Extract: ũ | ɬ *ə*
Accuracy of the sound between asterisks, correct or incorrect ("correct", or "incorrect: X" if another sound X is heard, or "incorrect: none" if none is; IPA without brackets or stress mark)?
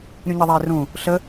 correct